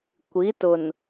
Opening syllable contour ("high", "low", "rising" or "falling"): rising